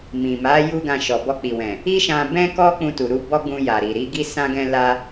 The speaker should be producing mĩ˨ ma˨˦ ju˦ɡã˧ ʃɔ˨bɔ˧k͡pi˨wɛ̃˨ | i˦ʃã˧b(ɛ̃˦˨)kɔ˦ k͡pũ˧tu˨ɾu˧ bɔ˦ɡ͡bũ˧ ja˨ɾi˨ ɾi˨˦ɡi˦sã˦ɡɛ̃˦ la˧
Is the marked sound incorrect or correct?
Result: incorrect